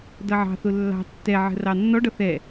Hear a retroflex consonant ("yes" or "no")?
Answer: yes